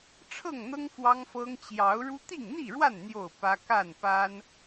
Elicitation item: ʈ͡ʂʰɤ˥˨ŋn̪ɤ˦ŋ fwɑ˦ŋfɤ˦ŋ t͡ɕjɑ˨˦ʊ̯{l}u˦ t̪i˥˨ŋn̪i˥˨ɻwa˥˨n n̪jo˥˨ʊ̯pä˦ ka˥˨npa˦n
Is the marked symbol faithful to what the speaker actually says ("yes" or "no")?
no